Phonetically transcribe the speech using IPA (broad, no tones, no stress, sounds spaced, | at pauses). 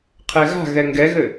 qʰ ɛ ɣ a̤ ɣ ɛ ŋ ɡ ɛ ɣ ɘ